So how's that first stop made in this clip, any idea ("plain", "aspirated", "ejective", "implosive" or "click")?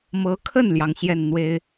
aspirated